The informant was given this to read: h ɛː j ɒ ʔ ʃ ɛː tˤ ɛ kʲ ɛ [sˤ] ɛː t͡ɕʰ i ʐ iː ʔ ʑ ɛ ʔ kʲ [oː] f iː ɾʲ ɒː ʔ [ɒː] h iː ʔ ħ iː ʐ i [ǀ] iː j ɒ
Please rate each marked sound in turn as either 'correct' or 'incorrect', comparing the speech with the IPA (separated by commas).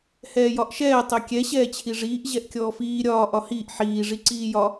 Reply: incorrect, incorrect, incorrect, correct